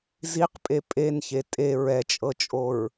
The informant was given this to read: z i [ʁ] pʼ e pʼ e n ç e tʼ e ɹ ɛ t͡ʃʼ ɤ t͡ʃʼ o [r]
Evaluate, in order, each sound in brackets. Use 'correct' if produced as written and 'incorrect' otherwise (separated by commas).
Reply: incorrect, incorrect